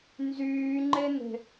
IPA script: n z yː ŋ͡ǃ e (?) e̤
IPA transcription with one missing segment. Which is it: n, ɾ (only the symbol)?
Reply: n